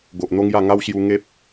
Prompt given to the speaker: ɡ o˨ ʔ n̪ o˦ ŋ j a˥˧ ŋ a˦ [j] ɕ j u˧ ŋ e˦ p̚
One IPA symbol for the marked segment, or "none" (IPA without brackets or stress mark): w